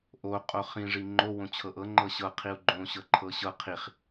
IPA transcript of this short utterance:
ʔ o qʼ o χ ĩ ʐ i ŋ͡ǃ o w õ t͡ɕʰ ɤ ʔ ɤ ŋ͡ǃ ɤ ɕ ɤ qʰ i u̯ ɡ͡ǃ õ ɕ ɤ ǃʰ ɤ ɕ ɤ qʰ i χ

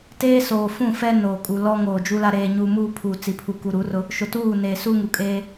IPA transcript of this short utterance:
t eː˦ s oː˨ f ũ˦˨ f ɛ˦ n oː˨ kʼ u˨ l ɔ˦ ŋ oː˨ d͡ʒ u˦ l a˦ ɾ eː˨ ɲ u˨ m uː˦ pʰ u˨ t͡s i˨ pʰ u˨ k u˨ ɾ u˨˦ r ʊ˦ | ʃ ʊ˨ t uː˦˨ n eː˨ s u˦ ŋ u˨ kʼ eː˦

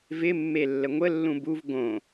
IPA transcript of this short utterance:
v ɪ mː e lː ə ŋʷ ə lː ũ b u v ɡ õ

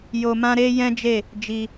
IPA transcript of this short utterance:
j o˧ m ã˦ ɾ e˦ j ɛ̃˦ d͡ʒ e˦˨ | d͡ʒ i˧

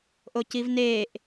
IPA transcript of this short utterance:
ʔ o c i v n eː ʔ

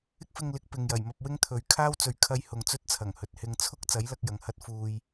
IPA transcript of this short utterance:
ɪ˥ k̚ f ɪ˧ ŋ l ɪ˨˥ k̚ p ɪ˨ ŋ j ɐ˨˩ j m ɐ˧ p̚ w ɪ˥ ŋ t̪ʰ ɵ˨˧ ɥ kʰ aː˥ w t͡s ɵ˨ ɥ kʰ ɐ˧ j h ʊ˨ ŋ t͡s ɵ˥ t̚ t͡sʰ ɐ˨˩ ŋ h ɵ˨ t̚ h ɪ˧ ŋ t͡sʰ ʊ˥ k̚ t͡s ɐ˨˥ j l ɐ˧ k̚ j ɐ˨˧ ŋ h ɐ˥ t̚ f uː˧ j

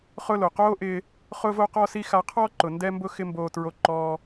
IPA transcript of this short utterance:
χ ʊ˥ l o˩ q oː˥ ʔ ɪː˧ | χ ʊː˥ v o˥ q ɔ˥ s i˥ x a˧ qʰ ɔ˥ ǃ ʊ˩ n d ɛ˥ m b ʊ˥ x ɪ˥ m b oː˧ t ɹ o˧ ǃ ɔː˧

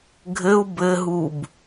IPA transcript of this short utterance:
ɡʱ ɘ u̯ b ɘ ɦ u b

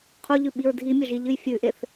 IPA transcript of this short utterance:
qʰ u ʎ ʉ ɓ i ɹ dʱ i mʲ ɐ ʒ i ʎ ɨ j fʲ ʉ ʔ e θ

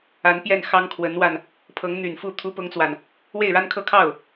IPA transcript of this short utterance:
a˧˥ n p j ɛ˥˩ n x ɑ˥ ŋ kʰ w ə˧˥ n w a˧ n | pʰ ɤ˧˥ ŋ n̪ y˨˩ n f u˥˩ t̪ʰ u˥ p ʊ˥ ŋ t͡s w a˨ n | w e˥˩ ɪ̯ ɻ a˥ n kʰ ɤ˥˧ kʰ ɑ˥˩ ʊ̯

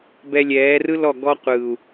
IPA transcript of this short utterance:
b ɛ˧ lʲ ɛː˨˦ r ɯ˦ l ɔ˦˨ ɡ ɔ˧ qʷ ɯː˨ u̯

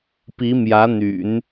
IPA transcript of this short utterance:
p i˧˥ m j ä˧˥ n̪ y̰˨˩˦ n

